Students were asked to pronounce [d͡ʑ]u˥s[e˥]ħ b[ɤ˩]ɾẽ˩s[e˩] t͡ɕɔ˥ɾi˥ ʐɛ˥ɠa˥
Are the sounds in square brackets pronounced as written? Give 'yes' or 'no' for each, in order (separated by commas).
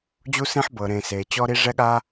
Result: yes, no, yes, yes